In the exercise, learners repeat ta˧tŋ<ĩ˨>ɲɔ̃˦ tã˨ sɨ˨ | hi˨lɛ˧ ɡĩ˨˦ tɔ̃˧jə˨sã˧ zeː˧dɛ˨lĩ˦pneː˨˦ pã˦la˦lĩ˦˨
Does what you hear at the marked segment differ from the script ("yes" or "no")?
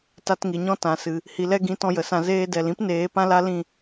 yes